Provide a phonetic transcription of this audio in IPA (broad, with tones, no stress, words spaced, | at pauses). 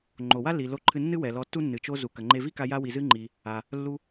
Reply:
ŋ͡ǃo˩wa˥lːi˩ lo˧ǃʰɨ˧nːɨ˥ wɛ˩lɔ˧tːu˥ nːɨ˩t͡ʃo˧ zu˩kɐ˩ŋ͡ǃe˧ vi˥ka˧ ja˧wi˩zɨ˧ŋ͡ǃi˩ | a˩ | lːu˧